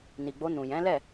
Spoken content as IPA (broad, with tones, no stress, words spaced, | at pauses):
ni˨ɡ͡bo˧ nũ˨ jɛ̃˨˦lɛ˦˨